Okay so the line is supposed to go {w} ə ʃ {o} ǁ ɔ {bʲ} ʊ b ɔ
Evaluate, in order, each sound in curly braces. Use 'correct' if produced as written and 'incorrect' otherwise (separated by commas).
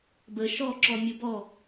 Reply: incorrect, incorrect, incorrect